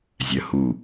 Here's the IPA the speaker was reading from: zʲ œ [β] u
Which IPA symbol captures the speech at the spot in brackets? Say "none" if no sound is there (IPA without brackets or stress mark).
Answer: h